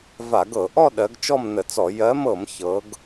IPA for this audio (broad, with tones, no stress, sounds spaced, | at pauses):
v a˧˩˧ ɡ ɤ˧˩˧ ʔ ɔ˥˧ ɗ ɜ˨˦ ɡ t͡ʃ ɔ˥˧ m n ə˧˩˧ t͡s ɔ˧˩˧ j ɜ˨˦ m ɤ˧˩˧ m ç ɤ˨˦ ɡ